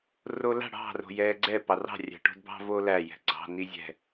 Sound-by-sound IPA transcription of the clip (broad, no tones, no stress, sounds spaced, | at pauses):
r o l a̤ ɽ ɑ̤ r o̤ j ɛː ɡ͡ǀ ɛ p ɑ r ɑ̤ rʲ æ̤ ʈ o̤ d b ɑ̤ v oː l æ j ɛ̤ ɡ͡ǀ ɑ̤ n i zʲ ɛ̤